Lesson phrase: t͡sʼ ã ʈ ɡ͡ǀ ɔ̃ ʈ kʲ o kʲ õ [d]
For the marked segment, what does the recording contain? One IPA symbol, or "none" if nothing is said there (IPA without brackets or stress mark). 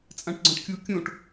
ʈ